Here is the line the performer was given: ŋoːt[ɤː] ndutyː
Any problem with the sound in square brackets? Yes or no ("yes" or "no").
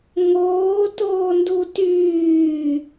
yes